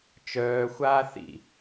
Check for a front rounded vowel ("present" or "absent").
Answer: present